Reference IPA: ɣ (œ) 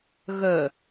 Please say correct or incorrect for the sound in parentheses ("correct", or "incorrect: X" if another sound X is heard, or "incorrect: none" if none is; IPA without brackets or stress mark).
correct